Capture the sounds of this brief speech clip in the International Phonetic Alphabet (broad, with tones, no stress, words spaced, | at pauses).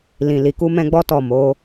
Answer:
lĩ˨li˨ku˧ mɛ̃˦ɡ͡bɔ˦tɔ˦˨ mo˨˦